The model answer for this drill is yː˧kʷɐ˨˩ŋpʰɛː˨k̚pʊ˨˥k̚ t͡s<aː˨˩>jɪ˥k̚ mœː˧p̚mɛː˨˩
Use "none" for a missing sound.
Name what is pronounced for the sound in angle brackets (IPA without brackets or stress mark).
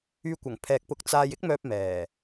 aː˧